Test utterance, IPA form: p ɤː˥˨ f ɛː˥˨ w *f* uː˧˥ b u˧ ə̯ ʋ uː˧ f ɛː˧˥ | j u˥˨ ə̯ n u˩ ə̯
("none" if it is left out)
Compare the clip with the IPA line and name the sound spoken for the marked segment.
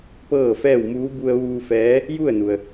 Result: m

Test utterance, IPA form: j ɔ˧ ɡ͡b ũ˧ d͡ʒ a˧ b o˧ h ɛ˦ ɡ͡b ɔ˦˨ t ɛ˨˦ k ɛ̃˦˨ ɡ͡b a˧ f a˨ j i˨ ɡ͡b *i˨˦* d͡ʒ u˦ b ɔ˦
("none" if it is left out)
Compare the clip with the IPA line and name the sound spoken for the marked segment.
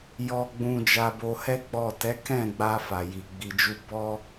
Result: i˧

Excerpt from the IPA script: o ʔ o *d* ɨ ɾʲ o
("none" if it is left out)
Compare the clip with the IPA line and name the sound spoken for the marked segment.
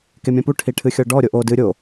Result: d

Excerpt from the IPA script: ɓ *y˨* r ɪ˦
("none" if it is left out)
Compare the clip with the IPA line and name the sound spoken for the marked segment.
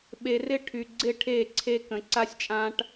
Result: e˨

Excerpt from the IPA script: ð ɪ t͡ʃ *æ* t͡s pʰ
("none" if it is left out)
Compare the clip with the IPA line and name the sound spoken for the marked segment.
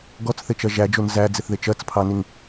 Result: ɜ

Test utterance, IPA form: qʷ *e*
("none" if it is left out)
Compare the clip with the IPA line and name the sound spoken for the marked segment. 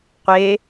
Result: e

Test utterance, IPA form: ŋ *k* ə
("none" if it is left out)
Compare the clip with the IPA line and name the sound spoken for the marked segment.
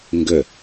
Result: ɡ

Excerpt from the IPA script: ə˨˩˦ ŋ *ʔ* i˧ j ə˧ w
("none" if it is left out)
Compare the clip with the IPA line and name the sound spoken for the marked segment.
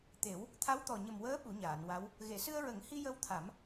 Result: h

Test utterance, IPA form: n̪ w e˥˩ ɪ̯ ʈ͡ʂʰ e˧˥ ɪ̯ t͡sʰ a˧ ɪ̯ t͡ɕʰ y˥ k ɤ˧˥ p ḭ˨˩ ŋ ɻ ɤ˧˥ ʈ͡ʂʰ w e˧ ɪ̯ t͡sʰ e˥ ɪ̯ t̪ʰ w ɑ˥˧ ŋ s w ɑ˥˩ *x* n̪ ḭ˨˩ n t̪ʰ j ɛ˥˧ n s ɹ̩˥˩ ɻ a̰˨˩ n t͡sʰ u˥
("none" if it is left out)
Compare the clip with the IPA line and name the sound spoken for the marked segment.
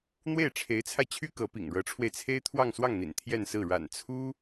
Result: ŋ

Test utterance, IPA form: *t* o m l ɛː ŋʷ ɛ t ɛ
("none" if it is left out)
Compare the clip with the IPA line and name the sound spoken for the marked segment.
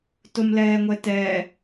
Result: t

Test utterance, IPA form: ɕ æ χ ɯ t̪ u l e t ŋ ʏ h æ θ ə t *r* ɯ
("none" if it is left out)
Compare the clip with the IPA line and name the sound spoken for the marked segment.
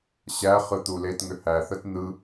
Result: n̪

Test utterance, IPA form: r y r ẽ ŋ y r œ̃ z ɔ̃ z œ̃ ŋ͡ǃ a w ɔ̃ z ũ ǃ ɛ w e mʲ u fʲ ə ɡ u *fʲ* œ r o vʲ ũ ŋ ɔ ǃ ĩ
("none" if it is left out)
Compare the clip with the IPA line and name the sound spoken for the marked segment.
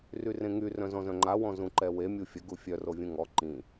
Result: fʲ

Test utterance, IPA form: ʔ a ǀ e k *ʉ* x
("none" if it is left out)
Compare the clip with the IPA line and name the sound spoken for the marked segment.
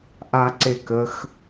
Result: ə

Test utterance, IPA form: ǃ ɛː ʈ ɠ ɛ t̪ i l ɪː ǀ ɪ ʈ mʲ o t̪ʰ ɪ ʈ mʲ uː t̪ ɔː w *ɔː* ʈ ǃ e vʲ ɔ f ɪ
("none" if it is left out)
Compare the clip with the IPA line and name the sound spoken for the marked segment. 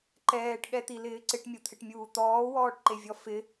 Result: ɔː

